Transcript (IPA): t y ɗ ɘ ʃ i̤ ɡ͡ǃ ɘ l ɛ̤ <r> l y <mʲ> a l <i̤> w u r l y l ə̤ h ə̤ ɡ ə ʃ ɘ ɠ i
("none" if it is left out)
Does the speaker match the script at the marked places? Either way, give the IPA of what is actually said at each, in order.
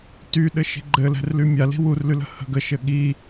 r, mʲ, i̤

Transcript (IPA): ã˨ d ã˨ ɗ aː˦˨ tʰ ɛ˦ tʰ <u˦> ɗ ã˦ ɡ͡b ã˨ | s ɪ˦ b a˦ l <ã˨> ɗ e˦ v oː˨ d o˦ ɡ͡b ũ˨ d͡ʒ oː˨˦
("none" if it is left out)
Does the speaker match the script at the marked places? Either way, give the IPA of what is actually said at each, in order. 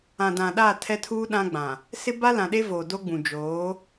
uː˦, ã˨

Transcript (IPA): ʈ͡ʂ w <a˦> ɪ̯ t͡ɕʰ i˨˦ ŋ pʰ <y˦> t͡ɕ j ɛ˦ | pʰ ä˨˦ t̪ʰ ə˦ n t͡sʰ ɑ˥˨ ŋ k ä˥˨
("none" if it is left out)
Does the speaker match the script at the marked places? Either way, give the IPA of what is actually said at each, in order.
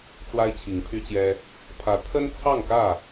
a˦, y˦

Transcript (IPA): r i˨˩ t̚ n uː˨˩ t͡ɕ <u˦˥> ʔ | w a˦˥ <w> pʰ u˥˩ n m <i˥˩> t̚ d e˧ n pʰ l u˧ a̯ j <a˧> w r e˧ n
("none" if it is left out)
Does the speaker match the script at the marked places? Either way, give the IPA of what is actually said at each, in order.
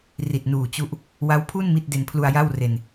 u˦˥, w, i˥˩, a˥˩

